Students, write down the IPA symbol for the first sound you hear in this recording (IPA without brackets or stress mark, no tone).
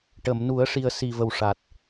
ʈ